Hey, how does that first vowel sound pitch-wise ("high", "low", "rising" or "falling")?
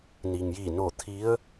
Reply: low